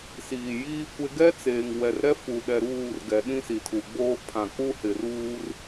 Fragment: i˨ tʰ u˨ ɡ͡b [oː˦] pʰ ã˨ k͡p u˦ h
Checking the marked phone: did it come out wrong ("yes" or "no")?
no